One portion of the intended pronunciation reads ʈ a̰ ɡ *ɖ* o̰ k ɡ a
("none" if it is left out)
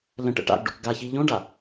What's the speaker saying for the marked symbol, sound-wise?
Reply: ɖ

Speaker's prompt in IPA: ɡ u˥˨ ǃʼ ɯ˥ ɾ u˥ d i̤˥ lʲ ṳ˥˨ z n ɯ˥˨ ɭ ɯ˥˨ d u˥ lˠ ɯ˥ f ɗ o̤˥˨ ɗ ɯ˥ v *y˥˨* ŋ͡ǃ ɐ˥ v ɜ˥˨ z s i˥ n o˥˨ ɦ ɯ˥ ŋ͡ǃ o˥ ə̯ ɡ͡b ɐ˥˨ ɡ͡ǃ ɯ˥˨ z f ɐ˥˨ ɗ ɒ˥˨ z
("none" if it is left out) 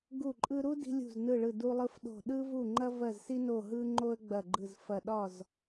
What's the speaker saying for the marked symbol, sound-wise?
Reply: u˥˨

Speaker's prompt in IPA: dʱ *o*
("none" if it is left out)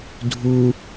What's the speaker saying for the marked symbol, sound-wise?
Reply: u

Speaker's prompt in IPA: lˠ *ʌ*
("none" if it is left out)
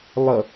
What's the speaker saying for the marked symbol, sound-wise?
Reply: ʌ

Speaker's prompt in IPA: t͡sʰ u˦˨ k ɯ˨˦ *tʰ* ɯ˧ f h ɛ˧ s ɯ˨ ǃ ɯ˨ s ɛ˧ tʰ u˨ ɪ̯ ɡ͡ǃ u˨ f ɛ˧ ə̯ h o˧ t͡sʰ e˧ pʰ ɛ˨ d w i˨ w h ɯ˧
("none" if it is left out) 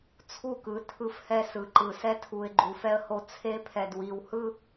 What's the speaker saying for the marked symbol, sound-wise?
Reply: tʰ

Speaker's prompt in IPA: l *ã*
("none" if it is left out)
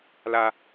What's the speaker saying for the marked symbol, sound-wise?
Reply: a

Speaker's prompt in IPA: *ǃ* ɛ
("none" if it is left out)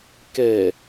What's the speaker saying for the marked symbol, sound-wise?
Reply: k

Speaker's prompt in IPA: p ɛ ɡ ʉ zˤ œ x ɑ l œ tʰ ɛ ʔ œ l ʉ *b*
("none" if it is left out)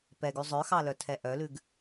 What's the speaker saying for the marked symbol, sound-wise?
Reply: ɡ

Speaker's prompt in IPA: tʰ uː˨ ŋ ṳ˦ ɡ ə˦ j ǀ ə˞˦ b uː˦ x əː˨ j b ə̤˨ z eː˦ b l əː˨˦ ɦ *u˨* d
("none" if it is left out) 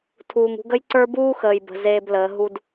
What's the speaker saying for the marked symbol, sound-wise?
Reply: u˦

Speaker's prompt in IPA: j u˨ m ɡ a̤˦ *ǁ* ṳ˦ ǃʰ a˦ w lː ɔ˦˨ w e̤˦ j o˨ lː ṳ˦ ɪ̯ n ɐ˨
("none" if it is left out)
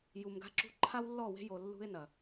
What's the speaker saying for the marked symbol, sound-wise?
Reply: ǁ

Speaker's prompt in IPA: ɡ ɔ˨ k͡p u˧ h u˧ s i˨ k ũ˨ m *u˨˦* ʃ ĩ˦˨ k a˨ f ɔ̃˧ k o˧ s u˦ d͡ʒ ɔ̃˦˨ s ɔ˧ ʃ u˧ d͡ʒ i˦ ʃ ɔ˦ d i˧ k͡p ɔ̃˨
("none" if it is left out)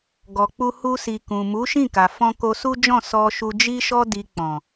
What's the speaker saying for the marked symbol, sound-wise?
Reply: u˨˦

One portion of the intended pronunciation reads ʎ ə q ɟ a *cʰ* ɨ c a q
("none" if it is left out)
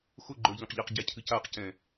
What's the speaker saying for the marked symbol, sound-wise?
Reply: cʰ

